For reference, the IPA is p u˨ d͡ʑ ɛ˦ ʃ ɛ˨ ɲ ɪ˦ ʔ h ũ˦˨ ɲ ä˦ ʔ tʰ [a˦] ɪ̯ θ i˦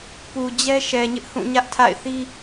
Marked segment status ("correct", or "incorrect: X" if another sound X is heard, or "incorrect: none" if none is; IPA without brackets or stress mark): incorrect: a̰˦˨